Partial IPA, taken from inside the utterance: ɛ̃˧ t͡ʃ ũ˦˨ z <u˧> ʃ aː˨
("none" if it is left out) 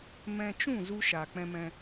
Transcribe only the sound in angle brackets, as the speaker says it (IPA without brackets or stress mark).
u˧